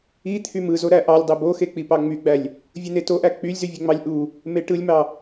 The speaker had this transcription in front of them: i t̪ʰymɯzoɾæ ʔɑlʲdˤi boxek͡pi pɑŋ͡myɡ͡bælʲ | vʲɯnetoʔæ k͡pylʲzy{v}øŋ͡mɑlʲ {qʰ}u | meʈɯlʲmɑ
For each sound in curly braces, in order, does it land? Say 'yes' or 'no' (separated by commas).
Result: no, no